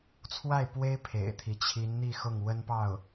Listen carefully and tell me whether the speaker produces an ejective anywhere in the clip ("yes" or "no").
no